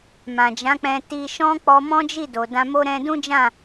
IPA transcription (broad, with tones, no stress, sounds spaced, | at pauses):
m ã˨ d͡ʒ ã˨˦ k͡p ɛ̃˧ t i˧ ʃ ɔ̃˦ k͡p ɔ˧ m ɔ̃˦ d͡ʒ i˦˨ d o˨ d ã˧ m o˦ ɾ ɛ̃˧ d ũ˦ d͡ʒ ã˦˨